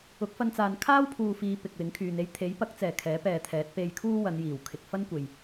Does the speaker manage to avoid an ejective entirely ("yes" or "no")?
yes